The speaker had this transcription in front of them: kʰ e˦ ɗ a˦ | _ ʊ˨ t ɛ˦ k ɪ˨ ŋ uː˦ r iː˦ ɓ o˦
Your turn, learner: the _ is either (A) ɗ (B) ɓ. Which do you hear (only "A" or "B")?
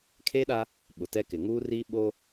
B